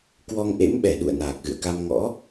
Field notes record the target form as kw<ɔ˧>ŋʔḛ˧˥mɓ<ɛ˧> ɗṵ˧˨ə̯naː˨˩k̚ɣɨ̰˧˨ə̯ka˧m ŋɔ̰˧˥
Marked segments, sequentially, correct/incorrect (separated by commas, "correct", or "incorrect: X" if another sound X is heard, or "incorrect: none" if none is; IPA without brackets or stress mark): correct, incorrect: ɛ˧˩